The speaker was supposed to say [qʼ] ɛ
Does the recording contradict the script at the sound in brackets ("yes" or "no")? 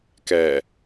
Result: yes